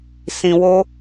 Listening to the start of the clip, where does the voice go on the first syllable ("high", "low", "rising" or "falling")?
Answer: low